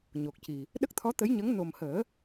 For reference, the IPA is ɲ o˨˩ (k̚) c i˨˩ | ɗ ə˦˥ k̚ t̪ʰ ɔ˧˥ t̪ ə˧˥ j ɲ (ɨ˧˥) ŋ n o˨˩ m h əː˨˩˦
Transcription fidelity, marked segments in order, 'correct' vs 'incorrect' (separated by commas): correct, incorrect